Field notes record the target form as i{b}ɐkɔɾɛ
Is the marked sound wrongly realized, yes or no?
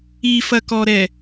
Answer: yes